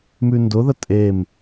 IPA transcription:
mʉndʊðə tʼem

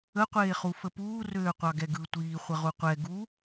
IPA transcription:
ə qʷeːχufəpuː røːqʷɑɡɛɡɯ tʷiː χʷəʁuqʷɛ ɡu

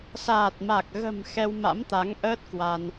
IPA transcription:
saː˨˩t̚ma˨˩k̚ɣə̤˨˩m xɛ˧wma̰˧˥mt̪a˨˦ŋʔəː˦˥t̚ kwa˧n

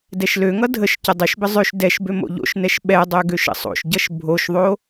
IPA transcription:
dɛʃløŋʌ dʱəʃ cədˤyʃbə zˤøʃ dɛʃbø mo̰ʎo̰ʃnɛʃ ɓɛdˤø ɡøʃə̰sˤo̰ʃɟʌʃ bʱoʃðˤo

